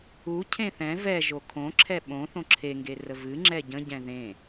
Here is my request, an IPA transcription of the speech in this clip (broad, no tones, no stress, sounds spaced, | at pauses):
u cʰ ẽ θ ɛ̃ v ɛ ʒ o kʰ õ ǁʰ ɛ ɓ õ θ õ ǁʰ e ŋ ɡ e r ə v ɨ ŋ͡ǁ ɛ ɟ ə̃ ɟ ɛ̃ ð ẽ